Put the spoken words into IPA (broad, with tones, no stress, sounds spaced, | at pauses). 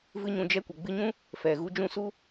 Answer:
v ɨ˦ ɲ ũ˧ d͡ʒ ɛ˦ kʷ ə˨ ɡ͡b ɨ˧ ɲ ũ˦ | f ɛ˨ ɣ u˧ d͡ʒ ũ˦˨ s u˦